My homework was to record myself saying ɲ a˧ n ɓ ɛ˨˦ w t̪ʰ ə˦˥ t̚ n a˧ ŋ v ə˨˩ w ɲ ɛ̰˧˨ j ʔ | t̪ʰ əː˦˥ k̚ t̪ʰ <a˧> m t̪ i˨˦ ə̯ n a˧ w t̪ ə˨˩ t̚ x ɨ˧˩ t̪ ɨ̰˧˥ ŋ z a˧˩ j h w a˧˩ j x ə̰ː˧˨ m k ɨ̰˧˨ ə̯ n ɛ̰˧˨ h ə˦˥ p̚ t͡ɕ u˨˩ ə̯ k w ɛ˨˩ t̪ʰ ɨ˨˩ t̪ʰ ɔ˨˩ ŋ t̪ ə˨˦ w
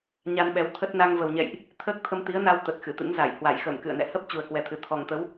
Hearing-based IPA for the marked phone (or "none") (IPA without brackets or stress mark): ə˧